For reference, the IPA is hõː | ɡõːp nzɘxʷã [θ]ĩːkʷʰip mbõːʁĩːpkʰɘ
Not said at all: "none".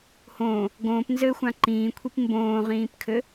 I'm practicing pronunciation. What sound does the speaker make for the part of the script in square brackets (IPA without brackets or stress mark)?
ǃ